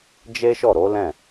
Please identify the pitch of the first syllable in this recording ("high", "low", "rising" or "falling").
high